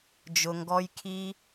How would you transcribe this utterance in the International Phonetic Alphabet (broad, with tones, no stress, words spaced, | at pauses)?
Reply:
d͡ʒʊ˧ŋɡɔ˦j kʰi˦